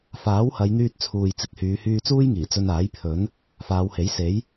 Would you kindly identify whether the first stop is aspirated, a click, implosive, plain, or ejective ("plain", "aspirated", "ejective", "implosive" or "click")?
plain